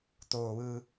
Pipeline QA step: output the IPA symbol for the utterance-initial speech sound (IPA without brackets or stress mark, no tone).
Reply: t̪